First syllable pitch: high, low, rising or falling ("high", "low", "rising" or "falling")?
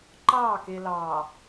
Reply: falling